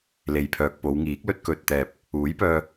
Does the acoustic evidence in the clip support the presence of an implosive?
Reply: no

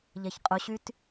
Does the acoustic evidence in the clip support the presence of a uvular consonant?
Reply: yes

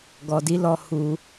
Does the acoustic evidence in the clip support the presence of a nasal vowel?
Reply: no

